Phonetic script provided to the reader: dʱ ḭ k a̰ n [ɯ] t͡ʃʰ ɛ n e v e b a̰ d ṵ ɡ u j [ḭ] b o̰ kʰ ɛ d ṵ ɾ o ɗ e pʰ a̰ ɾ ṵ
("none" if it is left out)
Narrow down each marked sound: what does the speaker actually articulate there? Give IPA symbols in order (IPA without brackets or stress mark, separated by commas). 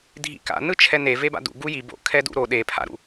ɯ, i